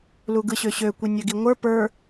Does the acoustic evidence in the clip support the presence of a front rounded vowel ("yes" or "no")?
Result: yes